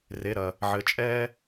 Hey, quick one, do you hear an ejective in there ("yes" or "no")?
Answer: yes